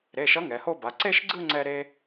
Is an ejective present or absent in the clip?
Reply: absent